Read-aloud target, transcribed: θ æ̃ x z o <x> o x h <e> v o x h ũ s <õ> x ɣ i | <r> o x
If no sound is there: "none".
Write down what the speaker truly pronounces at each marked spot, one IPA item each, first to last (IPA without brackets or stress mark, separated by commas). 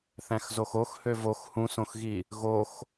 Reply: x, ø, õ, ɣ